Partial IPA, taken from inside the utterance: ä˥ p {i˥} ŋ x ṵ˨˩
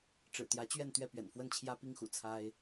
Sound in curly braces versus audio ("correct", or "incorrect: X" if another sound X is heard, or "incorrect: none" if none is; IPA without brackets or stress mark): correct